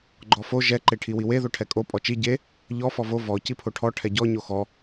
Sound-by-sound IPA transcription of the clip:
ɡ͡ǃ ɔ f o ʒ ɛ ǃ e ʈʰ i w i w e ð o ʈʰ ɛ kʼ o pʼ ɔ t͡ʃ i ɟ e | ʎ ɔ f ɔ v o v ɔ c i pʰ o ʈʰ ɔ ʈʰ ɛ ɟ ɔ ɲ o x ɔ

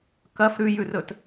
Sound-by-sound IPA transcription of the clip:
k ɐ f ɾ ʉ j ʉ r ɵ t

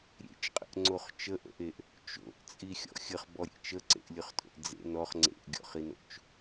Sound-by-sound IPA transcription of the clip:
ɾʲ ḛ t͡ʃ qʼ ə̰ ʔ ŋ͡ǀ o χ t͡ʃ ə ʔ ə̰ ʔ e ʔ | t͡ʃ o̰ ʔ t͡sʼ i xʲ ɔ̰ xʲ ə χ b ɔ ɾʲ ḛ t͡ʃ ə ǀ ḛ ʔ lʲ ɵ χ tʼ o̰ ʔ d͡z ḛ n ɔ χ ŋ͡ǀ ḛ ʔ ɡʲ ɔ̰ χ i n o̰ t͡ʃ

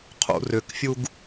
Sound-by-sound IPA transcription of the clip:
qʰ ṵ r ʏ k fʲ u ɡ

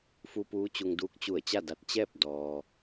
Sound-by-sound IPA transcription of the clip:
f u˧ p uː˧˥ t͡ɕ u˧ ŋ d uː˧˥ k̚ t͡ɕ u˧˩ ə̯ t͡ɕ a˥˨ d a˧ t̚ t͡ɕ ɛː˥˨ p̚ d ɔː˩

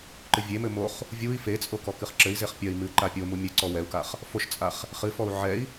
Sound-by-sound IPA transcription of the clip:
ǃ ɨ vʲ e m ɘ m o χ | vʲ u i̯ f e t͡sʼ o k ɔ k ɨ χ ǁ ɘ i̯ z e χ pʲ ɐ i̯ m ɨ ǃ a pʲ o m u mʲ ɘ ǀ ɔ w ɛ u̯ k a χ | f o ʃ t͡sʼ a χ | χ ɨ f ɔ u̯ ʕ ɛ i̯

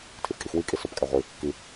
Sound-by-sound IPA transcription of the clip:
tʰ i f kʼ i x w i kʼ i s o p kʼ æ ʁʷ i | k i

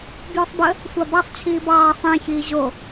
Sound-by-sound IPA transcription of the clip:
b j o sˤ b ə | sʷ ɑ b ɑ sˤ t͡ɕʰ iː b ɑː sˤ ẽ ç iː ʑ o

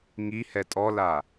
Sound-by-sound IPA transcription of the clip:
ŋ i h ɛ tʼ ɔ l a

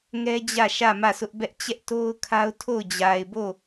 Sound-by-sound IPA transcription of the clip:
ŋ ɛ˦ d͡ʑ ä˦˨ ʃ ä˦˨ m ä˦˨ s ʊ˦ ʔ b ɛ˦ ʔ t͡ɕ ɛ˦ ʔ t o˦ ʊ̯ kʰ a˦ ʊ̯ tʰ o˦˨ ʊ̯ d͡ʑ a˨ ɪ̯ b o˦˨

